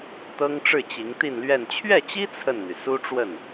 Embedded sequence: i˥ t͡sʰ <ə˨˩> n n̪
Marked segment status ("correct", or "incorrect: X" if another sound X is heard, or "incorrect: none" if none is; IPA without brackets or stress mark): incorrect: ə˥˩